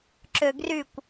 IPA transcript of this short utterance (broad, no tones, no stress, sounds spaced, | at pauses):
ǁ ø ɡ r y kʷ